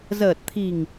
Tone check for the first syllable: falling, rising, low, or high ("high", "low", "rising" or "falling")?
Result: low